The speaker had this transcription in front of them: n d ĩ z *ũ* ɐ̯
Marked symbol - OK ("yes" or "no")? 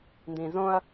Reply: no